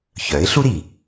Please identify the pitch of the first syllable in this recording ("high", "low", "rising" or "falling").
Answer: rising